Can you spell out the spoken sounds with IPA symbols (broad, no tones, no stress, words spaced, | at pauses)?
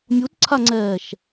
mʲutǀʰaŋ͡ǀɛːʃ